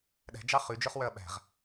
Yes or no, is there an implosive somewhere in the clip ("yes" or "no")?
yes